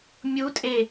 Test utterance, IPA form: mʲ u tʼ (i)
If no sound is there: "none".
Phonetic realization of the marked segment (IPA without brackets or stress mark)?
e